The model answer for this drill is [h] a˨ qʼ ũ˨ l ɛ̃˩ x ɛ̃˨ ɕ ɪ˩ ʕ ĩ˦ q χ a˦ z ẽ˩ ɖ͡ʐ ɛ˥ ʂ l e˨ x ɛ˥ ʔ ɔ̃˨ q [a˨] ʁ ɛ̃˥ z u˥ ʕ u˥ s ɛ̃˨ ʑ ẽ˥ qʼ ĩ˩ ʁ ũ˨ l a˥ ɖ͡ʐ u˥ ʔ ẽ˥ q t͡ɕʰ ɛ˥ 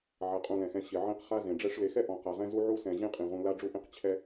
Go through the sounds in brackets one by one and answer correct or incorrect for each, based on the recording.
incorrect, correct

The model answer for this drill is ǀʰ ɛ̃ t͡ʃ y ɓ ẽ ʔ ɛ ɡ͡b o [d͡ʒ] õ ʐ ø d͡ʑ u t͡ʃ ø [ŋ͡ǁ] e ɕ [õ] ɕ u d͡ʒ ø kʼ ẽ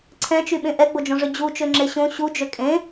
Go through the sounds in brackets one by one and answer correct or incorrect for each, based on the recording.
correct, correct, correct

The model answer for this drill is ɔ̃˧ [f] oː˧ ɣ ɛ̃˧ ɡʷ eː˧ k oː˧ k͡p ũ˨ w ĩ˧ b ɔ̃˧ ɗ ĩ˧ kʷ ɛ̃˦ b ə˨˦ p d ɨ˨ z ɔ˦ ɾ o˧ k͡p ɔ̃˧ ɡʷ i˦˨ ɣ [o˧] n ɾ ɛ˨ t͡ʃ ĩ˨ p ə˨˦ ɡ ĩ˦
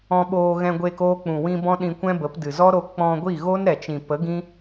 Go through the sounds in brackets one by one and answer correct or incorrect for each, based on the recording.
incorrect, incorrect

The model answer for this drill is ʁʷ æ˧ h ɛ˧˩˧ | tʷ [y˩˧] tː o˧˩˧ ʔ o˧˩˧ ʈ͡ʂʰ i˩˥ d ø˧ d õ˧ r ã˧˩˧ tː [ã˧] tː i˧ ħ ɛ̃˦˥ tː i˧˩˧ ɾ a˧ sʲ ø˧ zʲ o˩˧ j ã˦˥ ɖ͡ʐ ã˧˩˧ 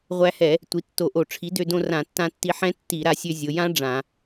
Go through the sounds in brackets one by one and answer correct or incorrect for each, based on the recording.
incorrect, correct

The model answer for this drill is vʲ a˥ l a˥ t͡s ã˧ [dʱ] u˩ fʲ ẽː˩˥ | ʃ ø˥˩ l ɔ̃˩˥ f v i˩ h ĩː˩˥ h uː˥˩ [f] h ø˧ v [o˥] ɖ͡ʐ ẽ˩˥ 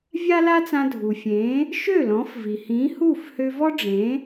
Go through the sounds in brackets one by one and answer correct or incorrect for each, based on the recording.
correct, correct, incorrect

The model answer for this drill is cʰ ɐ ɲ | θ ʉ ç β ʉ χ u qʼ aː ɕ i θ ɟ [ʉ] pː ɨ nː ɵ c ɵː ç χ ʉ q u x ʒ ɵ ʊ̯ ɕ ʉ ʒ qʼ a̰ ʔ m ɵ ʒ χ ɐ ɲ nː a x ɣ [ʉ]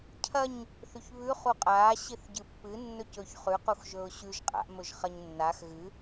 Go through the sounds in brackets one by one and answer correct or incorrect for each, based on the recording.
incorrect, incorrect

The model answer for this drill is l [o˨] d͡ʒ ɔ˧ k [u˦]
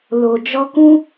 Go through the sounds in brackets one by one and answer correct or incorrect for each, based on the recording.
correct, incorrect

